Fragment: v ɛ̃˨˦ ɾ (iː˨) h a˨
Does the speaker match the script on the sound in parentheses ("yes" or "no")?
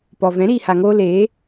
yes